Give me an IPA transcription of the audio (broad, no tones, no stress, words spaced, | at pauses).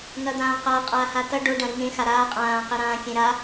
ŋɐd̪ãːqa qʼaːhatɐ ɖo ɖɐ̃ɾiŋẽ xaɾaː qʼãː qeɾãːkʲẽɾa